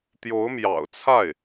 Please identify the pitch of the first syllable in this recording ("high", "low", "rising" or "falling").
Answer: rising